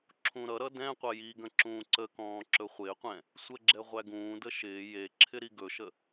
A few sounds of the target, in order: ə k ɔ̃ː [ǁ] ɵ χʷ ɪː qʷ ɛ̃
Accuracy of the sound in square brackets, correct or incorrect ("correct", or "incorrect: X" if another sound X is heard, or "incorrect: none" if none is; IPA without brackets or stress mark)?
correct